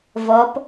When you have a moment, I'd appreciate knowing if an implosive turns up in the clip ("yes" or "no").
no